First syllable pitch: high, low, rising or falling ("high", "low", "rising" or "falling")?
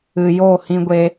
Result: low